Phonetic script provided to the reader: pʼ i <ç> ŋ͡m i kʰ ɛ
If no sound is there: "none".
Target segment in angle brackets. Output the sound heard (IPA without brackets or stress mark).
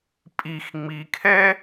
x